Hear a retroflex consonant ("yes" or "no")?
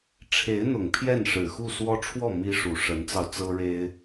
yes